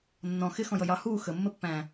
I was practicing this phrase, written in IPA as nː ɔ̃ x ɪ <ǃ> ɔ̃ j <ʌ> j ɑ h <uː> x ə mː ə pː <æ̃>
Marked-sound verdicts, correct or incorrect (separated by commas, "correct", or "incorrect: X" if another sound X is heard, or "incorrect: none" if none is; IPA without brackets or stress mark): incorrect: x, correct, correct, correct